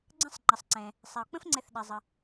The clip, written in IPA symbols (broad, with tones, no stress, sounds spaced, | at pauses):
ɡ͡ǀ ə̃˦ sˤ ŋ͡ǃ ə˩ sˤ ǀ ɛ̃˩ | sˤ ɛ˩ o̯ k͡p ə̃˦ f ŋ͡ǀ ɛ˨ θ ɗ ɛ˩ zˤ ə˩